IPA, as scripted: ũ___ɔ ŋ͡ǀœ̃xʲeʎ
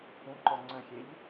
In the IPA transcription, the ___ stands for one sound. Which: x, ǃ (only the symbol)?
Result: ǃ